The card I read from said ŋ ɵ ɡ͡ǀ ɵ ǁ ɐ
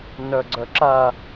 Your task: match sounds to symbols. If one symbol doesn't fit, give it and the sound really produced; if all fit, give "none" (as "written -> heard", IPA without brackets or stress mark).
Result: ŋ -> n